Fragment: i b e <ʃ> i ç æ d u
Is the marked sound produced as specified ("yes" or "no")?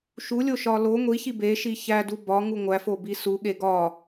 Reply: yes